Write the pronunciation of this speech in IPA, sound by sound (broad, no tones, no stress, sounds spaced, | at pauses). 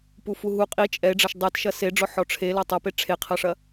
p u f u ɦ u qʼ i t͡ʃʼ ɛ e̯ ɖ͡ʐ ɐ ʃ dˤ ɛ t ʃ ɐ s e ɖ͡ʐ ɔ ħ ɔ ʈ͡ʂʰ e l ɐ tˤ ɐ p e ʈ͡ʂʰ e qʰ ɐ ʂ ɐ